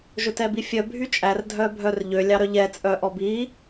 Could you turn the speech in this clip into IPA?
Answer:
ʒ ɵ t ɛ b i fʲ œ bʱ y t͡ʃʼ æ r dʱ œ bʱ œ r ʎ ø lʲ ɑ ɾ œ ʎ ɛ t͡sʼ œ ʔ ɔ b i

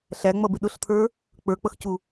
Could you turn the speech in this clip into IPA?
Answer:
ɬ æ ŋ͡m ʌ b ɪ ɗ ʊ ɬ t̪ʰ ə˞ | k͡p ə˞ k͡p ʌ x c u

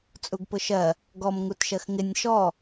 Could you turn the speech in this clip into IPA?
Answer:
t͡sʼ u ɡ p ʊ ʃ ɜ | ɡ ɔ m ŋ u t ʃ ɜ x ŋ ɪ nʲ ʃ ɔ

